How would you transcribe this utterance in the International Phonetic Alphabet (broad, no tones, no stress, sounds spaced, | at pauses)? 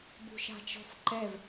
b ṳ ʃ a̤ t͡ʃ ɔ̤ f ǃ ɛ v